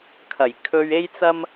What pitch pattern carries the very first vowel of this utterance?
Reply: low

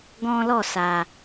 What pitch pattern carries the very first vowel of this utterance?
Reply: high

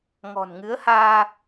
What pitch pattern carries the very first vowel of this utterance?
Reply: low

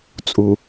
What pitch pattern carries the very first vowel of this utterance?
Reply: low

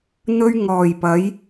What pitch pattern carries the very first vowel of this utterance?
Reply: high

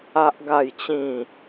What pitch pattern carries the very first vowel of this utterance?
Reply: high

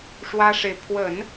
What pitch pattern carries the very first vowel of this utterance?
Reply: high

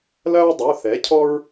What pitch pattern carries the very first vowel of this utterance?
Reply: high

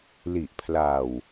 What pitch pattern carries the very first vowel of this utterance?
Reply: low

